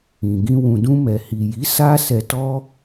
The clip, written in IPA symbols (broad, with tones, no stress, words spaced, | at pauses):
ĩ˨ɡĩ˧ wũ˨dũ˧ mɛ˨ hi˨ji˨˦ sa˧ sɛ˧tɔ˦